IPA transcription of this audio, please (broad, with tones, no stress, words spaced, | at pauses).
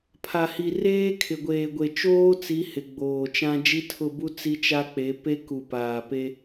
pʰa˨hi˨ reː˦kʰɪ˨ɡʷeː˨ɡʷe˨ t͡ʃoː˦t͡si˨˦ hɪ˨ ɡ͡boː˨t͡ʃã˦ d͡ʒi˦tʰʊ˦˨bu˦ t͡si˦t͡ʃa˦ k͡pe˨˦pe˦ ku˨paː˨pe˦